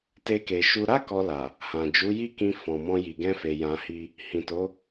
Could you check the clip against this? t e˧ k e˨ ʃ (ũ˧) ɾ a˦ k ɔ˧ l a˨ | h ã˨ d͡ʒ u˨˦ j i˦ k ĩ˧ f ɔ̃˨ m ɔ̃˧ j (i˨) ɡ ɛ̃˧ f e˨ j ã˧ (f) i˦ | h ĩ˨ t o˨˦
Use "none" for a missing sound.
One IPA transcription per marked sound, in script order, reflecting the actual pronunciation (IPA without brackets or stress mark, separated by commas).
u˧, i˨, h